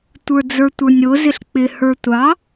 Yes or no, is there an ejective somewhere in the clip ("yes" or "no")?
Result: no